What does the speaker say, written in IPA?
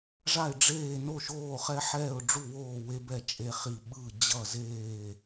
ʐ a˥˩ ɪ̯ ɖ͡ʐ eː˥˩ n o˥˩ ʃ oː˥˩ χ ɛ˦ ħ ɛː˥˩ ʊ̯ ɖ͡ʐ u˥˩ w oː˥˩ w e˦ b ɛ˥˩ t͡ʃʼ e˦ χ i˥˩ ɓ ɯ˥˩ d͡ʑ ʌ˥˩ z eː˥˩

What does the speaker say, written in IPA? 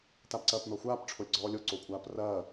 t a b ǀ ɐː p n ɔ xʷ aː p ʈ͡ʂʰ o lʲ ɡ͡ǀ ɔː lʲ o ǀ o kʷʼ aː p r ɐː

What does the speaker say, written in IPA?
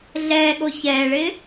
ɮ ɛː ɠ o ç ɛː ɭ ɪː

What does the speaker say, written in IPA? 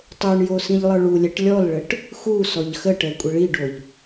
tˤ o ɳ j o s ĩ ʎ lˠ ə˞ ɭ u lʲ ɛ ʈ lʲ ɔ l ɭ ə ʈ | x u s ɔ ʎ x ə ʈ ɛ kʷʼ ə ɭ i ɖ o ʎ

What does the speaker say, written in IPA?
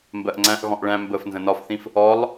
m b ɜ ʔ ŋ͡ǀ æ̃ ʔ ɣ ɔ̃ ʔ ɭ æ̃ m b ə f n z ə̃ n ɒ f θ ĩ f | ɔ lˠ

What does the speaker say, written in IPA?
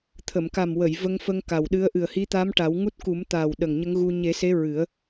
t̪ʰ ə˨˩˨ m k a˨˩ m w ə˨˩˨ j v ə˧ ŋ f ə˧ ŋ k a˨˩ w ɗ ɨ˧˥ ə̯ ʔ ɨ˨˩ ə̯ h i˧˥ t̪ a˧˥ m ʈ a˨˩˦ w ŋ u˦˥ t̚ k u˨˩˦ m t̪ aː˨˩ w ɗ ə˨˩ ŋ ɲ ə˧˥ ŋ ɣ u˧ ɲ e˨˩˦ s e˧˥ ɹ ɨ˨˩˦ ə̯

